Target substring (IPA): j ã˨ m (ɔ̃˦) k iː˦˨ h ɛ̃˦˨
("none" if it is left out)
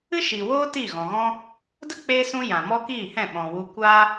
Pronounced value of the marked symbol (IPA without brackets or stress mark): ɔ˦